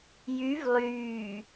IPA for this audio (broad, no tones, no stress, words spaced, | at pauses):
jyv lˠyː